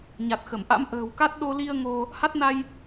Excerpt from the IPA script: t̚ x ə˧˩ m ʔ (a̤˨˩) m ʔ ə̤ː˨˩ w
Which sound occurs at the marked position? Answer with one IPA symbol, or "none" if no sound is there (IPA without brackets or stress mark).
a̰˧˥